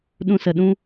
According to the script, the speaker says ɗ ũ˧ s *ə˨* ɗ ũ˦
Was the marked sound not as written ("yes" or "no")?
no